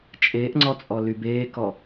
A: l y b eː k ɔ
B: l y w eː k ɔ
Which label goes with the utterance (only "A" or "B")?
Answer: A